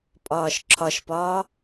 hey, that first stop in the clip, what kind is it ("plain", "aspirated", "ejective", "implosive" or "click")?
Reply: ejective